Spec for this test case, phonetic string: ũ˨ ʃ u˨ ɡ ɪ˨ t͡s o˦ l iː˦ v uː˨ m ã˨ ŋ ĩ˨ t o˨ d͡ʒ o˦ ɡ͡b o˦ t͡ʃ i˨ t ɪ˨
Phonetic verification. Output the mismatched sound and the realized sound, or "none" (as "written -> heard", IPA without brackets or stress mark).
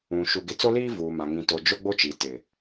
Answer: none